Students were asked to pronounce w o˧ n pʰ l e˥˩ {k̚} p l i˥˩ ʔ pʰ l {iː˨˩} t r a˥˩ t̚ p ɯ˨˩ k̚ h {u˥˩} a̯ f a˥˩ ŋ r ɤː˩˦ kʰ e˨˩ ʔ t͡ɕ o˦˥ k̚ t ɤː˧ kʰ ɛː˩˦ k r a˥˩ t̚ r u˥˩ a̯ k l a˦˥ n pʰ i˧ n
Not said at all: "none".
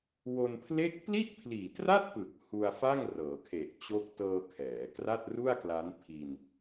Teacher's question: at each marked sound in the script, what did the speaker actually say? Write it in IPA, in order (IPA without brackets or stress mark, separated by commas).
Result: k̚, iː˨˩, u˧